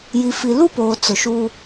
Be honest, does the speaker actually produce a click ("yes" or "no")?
no